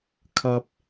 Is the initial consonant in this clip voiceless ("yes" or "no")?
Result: yes